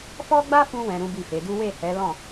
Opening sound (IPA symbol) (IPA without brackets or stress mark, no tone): f